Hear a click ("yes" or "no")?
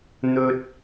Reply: no